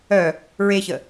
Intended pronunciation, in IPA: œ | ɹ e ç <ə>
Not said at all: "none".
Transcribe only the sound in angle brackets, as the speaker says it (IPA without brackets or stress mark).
ə